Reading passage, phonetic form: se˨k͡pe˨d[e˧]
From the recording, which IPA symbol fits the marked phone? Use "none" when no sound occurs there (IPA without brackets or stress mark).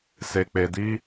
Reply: i˧